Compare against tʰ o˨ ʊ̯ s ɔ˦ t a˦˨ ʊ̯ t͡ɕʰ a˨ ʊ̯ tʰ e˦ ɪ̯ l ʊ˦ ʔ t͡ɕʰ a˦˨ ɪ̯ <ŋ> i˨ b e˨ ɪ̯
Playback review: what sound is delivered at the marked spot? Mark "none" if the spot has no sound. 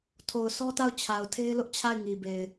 ŋ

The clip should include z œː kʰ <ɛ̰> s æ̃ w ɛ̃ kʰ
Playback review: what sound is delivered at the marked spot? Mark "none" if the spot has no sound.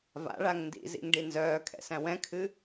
ɛ̰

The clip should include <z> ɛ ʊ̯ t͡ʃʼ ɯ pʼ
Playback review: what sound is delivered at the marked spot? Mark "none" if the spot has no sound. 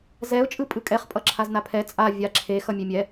z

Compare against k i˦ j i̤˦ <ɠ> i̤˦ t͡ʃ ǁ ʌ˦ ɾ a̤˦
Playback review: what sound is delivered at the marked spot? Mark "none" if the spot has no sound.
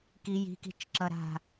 k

